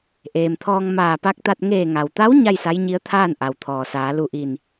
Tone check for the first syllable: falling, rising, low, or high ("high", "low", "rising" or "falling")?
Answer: low